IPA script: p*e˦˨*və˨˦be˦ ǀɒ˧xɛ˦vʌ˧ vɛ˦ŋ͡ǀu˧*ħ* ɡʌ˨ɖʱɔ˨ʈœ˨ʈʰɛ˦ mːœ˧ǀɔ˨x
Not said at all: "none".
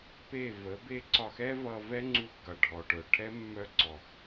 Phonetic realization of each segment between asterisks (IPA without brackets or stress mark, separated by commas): e˦˨, x